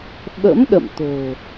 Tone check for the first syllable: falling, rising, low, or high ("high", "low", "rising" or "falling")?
rising